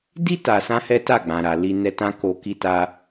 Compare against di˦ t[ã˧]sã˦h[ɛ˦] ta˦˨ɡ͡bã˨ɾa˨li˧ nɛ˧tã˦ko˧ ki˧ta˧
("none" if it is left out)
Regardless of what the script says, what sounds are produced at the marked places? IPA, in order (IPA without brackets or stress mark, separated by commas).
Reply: a˧, ɛ˦